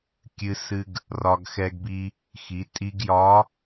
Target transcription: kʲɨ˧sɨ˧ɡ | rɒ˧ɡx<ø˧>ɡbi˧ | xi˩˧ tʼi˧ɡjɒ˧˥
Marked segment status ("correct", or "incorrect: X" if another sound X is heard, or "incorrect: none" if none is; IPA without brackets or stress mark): incorrect: ɛ˧